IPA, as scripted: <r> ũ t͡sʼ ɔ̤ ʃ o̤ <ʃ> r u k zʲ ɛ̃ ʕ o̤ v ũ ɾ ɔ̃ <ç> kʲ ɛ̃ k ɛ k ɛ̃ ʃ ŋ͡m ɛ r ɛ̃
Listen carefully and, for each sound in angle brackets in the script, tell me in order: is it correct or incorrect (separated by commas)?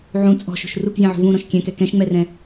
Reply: incorrect, correct, incorrect